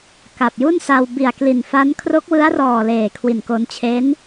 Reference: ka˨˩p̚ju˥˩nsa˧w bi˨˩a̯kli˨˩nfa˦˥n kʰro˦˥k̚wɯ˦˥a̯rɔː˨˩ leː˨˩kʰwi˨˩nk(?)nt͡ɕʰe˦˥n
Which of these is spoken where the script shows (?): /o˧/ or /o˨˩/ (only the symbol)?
o˧